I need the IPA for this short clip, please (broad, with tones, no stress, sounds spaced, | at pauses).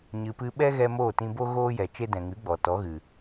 ɲ ɨ˨ p ɨ˧ ɓ ɛ˦ ɣ ɛ˧ m oː˦˨ t ĩ˧ b o˦ ɣ oː˦ j ɛ˨ t͡ʃ e˦ d ɛ̃˨ ŋ ɨ˨˦ ɡ͡b ɔ˨ t ɔ˨˦ ɣ ɨ˨